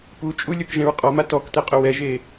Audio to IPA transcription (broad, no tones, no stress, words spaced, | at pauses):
put͡ʃʼu lʲokʒɛ̃ɹqʼɔma tɔk tɛqʼʊwɛʒe